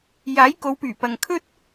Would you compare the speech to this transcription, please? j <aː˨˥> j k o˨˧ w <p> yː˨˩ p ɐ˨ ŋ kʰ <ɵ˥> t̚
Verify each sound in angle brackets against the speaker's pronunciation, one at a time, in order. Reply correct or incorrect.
correct, correct, correct

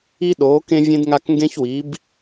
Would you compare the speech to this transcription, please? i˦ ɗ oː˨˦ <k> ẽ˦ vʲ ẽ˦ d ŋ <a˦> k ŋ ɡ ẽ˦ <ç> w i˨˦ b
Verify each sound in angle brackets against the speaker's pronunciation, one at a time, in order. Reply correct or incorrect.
correct, correct, correct

